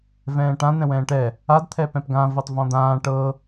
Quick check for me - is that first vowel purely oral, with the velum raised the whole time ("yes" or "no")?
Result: no